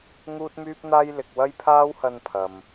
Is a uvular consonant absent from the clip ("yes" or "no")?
yes